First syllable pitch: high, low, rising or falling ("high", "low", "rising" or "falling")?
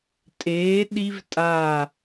rising